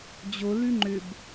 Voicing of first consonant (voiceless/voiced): voiced